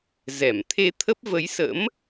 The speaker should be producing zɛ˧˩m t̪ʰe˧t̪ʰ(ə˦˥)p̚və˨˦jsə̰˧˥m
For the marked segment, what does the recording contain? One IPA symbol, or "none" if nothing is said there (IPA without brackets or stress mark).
ə˦˥